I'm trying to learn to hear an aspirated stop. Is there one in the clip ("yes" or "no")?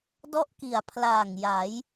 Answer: yes